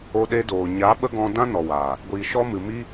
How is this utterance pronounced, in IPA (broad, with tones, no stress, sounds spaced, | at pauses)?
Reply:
o˧ ɗ e˧ d oː˨ ɲ a˨˦ ɓ ə˦ ɡ ɔ̃˧ d ã˦ n ɔ˨ w aː˨ | ɡʷ iː˨ ʃ ɔ˧ m ɨ˨ m i˧